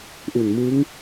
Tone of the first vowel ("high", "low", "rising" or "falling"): low